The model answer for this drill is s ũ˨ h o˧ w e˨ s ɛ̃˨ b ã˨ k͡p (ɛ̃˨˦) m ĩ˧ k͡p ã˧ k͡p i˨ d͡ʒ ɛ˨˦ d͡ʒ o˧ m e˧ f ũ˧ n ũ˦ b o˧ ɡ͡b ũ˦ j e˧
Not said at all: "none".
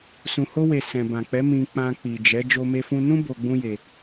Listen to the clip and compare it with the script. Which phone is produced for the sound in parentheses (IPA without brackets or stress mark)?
ɛ˨˦